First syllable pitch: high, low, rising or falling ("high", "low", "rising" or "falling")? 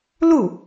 falling